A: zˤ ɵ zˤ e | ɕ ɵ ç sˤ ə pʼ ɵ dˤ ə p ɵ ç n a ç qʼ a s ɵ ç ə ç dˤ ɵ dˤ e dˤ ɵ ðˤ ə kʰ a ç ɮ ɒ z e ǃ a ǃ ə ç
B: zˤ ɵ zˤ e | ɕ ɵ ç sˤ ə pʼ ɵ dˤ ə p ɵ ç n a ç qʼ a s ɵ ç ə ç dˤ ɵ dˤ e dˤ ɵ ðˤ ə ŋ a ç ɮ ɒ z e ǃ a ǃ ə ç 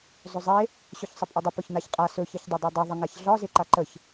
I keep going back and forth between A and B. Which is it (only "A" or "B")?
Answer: B